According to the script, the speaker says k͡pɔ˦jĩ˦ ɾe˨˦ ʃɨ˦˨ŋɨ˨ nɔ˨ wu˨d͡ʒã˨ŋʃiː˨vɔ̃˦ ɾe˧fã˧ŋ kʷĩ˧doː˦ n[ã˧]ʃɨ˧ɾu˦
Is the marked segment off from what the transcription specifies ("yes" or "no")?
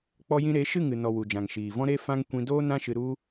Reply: yes